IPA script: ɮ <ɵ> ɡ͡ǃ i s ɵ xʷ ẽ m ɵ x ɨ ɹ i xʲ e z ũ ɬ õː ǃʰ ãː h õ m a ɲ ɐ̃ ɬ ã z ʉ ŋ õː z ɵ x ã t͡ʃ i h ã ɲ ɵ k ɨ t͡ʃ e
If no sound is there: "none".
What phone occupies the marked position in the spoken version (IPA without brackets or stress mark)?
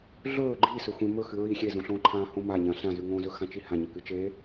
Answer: ɵː